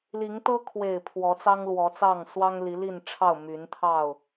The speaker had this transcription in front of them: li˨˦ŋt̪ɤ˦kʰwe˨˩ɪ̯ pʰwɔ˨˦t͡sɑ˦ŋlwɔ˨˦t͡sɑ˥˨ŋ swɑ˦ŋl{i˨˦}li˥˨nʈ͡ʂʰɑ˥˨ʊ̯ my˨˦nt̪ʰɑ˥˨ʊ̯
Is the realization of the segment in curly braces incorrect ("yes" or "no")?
no